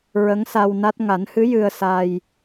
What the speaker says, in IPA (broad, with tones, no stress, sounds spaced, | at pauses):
ɹ ə˧˥ ŋ s a˧ w n a˦˥ t̚ ŋ a˨˩˦ n h ɨ˧˥ j ɨ˧ ə̯ s a˧ j